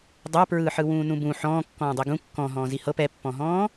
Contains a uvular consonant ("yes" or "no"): no